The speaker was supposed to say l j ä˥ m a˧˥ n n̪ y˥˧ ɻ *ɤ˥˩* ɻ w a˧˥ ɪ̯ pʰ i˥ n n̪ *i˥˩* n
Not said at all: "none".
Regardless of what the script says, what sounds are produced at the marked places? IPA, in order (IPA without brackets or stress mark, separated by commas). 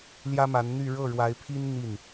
ɤ˥˩, i˥˩